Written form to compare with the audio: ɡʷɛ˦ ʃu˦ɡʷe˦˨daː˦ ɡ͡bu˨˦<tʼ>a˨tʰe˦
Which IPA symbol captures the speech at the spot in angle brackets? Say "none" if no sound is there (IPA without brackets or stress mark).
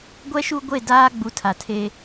tʰ